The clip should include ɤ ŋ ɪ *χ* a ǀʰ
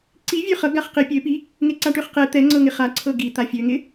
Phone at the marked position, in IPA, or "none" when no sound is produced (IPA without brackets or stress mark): χ